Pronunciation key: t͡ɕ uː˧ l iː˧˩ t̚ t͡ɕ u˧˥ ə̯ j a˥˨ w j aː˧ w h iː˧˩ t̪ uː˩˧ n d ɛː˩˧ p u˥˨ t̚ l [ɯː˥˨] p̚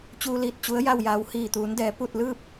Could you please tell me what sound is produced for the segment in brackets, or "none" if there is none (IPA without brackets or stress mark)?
ɯː˥˨